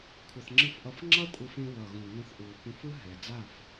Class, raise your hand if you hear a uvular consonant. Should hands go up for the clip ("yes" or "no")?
no